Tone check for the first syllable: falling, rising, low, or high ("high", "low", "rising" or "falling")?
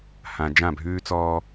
low